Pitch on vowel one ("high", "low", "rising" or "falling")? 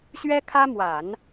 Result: high